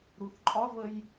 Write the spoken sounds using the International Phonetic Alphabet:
ɾ u θ ǃʼ ɒ v ə j

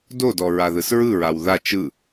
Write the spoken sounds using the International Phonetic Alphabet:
d o d ɔ ɹ a ð ɯ s ɹ ɯ ɹ a w ð a t͡ʃ ɯ

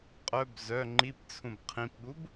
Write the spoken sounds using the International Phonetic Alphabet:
qʼ œ b z œ ŋ͡ǃ i p t͡sʰ ũ b qʰ ĩ p ɠ u b

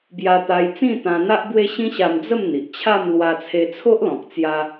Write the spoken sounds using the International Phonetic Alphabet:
b j a˧ t̪ a˧ j t͡s ĩ˥˧ t̪ ã˧ n̪ a˦ ʔ b w e˦ ɕ ĩ˦ ɕ a˧ m d͡z ə˥˧ m n̪ i˨ ʔ t͡ɕʰ a˥˧ m l w a˧ t͡sʰ e˧ t͡sʰ o˦ ʔ l ɔ̃˨ k̚ t͡s j a˧

